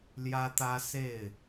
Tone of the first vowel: high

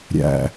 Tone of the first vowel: low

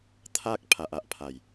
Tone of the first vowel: high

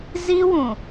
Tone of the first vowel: high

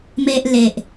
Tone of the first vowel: high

